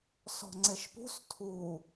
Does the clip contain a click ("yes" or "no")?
yes